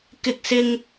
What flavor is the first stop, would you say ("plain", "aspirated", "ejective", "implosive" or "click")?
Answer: plain